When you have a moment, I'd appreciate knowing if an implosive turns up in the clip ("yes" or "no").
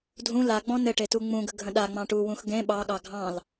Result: yes